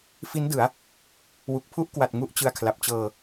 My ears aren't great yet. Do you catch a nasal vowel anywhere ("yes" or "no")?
no